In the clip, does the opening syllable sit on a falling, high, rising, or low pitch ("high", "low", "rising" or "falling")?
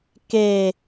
low